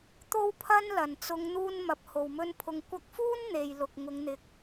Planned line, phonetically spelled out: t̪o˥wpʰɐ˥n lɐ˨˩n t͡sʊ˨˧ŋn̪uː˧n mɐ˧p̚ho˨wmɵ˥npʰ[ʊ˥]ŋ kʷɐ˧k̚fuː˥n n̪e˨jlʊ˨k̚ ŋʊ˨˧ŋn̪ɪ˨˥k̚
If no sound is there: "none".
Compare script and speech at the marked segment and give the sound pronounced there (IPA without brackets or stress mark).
ʊ˧